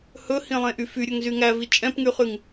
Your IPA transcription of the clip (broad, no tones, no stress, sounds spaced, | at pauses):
h ɵ h ĩ lˠ ẽ ʔ y f y ɾʲ ɵ ŋ z y ŋ æ v i t͡ʃʼ ɛ̃ p ŋ y χ y ŋ